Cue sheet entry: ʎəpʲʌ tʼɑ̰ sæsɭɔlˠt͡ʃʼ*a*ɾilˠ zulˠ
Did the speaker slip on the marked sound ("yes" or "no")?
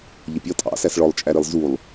yes